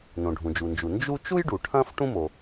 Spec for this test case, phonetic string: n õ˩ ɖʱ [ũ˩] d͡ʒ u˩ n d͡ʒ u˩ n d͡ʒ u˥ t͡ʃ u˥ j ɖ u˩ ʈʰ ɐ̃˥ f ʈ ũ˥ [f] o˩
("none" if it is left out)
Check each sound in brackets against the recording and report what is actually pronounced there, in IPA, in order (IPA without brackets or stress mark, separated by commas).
ũ˩, m